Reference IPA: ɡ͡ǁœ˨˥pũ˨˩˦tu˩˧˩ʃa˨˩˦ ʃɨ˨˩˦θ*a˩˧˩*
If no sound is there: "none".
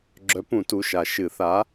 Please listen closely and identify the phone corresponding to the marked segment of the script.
a˨˥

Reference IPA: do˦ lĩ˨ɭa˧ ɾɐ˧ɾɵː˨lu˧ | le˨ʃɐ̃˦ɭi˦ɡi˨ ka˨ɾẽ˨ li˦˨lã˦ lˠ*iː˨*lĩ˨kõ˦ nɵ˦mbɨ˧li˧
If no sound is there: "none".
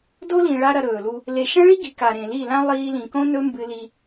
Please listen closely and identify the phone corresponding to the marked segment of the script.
iː˧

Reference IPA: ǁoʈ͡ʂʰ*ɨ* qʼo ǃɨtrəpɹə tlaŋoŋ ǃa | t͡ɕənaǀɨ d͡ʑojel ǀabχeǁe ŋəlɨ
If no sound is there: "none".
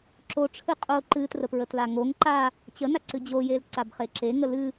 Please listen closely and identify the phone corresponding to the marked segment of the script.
ɨ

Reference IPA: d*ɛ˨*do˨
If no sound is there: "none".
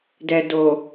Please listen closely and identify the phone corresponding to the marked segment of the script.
ɛ˨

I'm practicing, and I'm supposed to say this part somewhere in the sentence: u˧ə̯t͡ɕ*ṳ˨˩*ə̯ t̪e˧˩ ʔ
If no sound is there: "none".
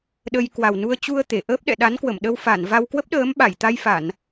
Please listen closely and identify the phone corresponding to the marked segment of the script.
u˧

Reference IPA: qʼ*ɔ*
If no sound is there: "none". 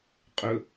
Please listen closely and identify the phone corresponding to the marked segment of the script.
ɵ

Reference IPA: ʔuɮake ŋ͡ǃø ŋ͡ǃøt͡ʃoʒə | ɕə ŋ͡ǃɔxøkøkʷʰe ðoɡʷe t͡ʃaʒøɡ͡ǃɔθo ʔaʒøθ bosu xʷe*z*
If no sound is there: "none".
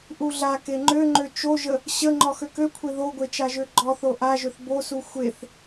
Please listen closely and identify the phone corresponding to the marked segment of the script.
θ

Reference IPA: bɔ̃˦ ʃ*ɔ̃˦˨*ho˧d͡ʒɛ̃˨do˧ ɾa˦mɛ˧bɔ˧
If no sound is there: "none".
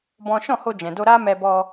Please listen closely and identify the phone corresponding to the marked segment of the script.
ɔ̃˦˨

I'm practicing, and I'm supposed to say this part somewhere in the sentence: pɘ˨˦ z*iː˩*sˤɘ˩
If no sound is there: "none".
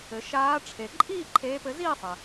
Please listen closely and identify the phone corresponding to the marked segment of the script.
iː˥˧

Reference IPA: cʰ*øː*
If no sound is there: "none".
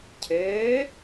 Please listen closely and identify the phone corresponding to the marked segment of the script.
øː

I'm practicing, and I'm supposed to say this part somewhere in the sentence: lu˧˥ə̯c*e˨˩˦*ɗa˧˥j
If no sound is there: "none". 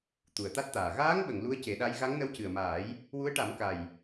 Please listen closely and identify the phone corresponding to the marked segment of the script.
e˨˩˦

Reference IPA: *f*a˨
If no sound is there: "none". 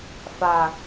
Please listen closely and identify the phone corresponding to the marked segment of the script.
f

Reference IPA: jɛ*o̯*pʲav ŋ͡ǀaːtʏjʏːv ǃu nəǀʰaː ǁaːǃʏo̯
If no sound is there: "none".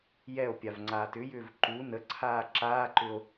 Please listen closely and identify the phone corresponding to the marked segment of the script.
o̯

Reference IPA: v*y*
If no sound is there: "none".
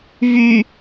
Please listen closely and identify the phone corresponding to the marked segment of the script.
y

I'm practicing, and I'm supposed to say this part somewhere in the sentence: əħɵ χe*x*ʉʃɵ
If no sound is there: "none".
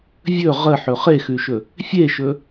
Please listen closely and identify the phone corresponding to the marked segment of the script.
x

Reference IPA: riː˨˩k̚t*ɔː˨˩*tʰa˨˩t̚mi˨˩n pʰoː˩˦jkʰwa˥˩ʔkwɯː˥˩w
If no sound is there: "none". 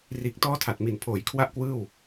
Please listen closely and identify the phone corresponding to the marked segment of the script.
ɔː˥˩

